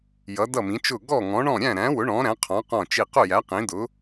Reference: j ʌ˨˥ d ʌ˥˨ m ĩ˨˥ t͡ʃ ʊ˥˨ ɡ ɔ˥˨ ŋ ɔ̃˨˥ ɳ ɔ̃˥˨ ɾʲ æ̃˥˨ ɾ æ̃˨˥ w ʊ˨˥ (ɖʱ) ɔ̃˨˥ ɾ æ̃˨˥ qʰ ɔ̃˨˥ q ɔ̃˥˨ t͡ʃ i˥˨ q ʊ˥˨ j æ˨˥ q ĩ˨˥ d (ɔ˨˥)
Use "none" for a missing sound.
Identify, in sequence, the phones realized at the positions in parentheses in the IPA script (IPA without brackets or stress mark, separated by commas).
ɳ, ʊ˨˥